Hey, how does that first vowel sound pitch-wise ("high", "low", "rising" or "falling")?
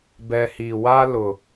low